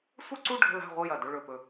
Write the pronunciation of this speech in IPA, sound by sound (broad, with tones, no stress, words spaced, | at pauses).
sʷə˥˧ǀu˥˧ ɖʱə̤˥˧la̤˥˧ʁʷə˥˧ jɐ˧˩dɵ˥˧ ɭɵ˧˩pɵ˧˩